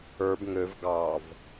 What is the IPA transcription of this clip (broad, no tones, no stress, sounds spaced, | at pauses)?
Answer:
ə˞ b ŋ ø v ɡ ɑ v